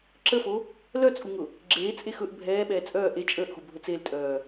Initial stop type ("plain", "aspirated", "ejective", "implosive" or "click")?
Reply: click